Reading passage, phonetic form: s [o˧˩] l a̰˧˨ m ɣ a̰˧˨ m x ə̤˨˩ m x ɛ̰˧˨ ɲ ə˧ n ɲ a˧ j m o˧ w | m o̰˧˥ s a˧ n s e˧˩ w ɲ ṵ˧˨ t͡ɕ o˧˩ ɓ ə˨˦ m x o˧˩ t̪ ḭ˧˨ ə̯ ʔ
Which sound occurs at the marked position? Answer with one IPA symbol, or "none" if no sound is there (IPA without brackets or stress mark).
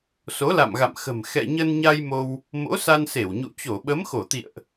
o˨˦